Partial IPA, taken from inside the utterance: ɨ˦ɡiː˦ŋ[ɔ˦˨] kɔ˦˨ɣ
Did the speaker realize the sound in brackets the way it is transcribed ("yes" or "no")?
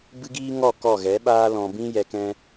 yes